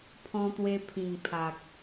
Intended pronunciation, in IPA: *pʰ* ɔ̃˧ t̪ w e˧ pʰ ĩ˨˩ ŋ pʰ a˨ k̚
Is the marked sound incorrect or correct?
correct